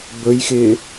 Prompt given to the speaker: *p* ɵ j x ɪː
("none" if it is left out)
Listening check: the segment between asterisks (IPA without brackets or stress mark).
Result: b